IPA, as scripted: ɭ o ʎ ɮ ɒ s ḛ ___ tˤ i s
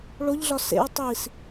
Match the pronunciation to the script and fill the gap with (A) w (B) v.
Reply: A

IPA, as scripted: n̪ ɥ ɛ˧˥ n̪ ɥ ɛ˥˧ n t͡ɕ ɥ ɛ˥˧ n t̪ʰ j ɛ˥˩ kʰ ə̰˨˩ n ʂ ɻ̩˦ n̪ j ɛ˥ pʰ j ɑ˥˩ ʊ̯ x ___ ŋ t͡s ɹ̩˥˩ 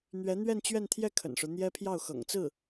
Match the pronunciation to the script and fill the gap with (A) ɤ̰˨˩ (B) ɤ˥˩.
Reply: A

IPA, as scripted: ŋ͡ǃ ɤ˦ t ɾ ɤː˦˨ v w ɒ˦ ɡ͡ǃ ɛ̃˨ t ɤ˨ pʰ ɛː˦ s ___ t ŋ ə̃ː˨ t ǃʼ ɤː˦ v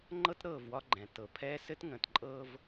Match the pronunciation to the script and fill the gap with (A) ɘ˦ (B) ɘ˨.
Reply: A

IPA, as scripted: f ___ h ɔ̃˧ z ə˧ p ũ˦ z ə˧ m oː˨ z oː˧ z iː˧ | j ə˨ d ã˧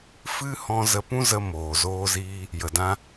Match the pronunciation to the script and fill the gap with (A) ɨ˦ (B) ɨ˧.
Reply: A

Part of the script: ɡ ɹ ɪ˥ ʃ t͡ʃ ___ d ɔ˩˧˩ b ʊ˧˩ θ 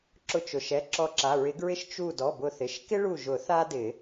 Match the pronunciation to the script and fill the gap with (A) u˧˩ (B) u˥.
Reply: A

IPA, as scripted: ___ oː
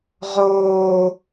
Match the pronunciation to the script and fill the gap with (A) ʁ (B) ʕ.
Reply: A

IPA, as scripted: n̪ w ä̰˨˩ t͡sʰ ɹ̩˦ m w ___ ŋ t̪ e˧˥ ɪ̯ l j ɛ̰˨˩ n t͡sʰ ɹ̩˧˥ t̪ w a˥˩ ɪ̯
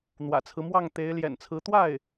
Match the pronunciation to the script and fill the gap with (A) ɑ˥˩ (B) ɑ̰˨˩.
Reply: A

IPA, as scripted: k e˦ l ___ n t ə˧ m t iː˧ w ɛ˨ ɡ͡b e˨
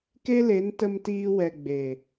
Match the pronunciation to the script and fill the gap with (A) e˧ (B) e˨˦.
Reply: B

